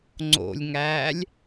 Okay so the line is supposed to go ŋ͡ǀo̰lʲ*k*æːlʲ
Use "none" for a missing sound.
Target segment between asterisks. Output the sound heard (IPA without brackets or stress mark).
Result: ŋ